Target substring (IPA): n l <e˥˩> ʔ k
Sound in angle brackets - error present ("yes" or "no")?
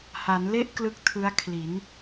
no